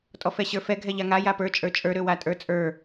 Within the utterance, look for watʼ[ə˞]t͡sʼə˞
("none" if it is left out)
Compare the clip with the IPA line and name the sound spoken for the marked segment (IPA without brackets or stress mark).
ə˞